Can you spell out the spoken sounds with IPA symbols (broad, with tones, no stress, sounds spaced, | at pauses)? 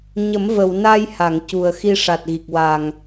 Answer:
ɲ ə˨˩˦ m v ə˨˩˨ w n a˧ j h a˨˩˨ ŋ c u˨˩ ə̯ x i˧ ʂ a˨˩ t̚ ɣ i˨˩ k̚ w a˨˩ ŋ